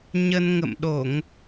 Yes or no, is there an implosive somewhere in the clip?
yes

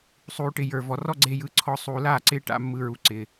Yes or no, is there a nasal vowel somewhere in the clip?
no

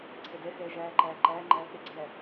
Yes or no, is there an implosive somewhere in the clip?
no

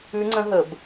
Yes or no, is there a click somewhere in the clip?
yes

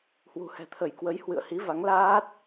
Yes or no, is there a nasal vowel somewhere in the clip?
no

